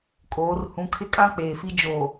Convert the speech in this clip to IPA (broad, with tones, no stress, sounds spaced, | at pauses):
kʼ oː˨˦ r h ũ˨˦ kʰ ɪ˦ kʼ ã˦ k͡p eː˨ f i˦ d͡ʒ oː˨